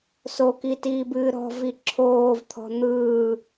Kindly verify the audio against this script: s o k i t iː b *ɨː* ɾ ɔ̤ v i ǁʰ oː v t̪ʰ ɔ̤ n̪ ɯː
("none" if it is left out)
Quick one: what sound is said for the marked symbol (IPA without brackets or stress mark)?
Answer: ɨː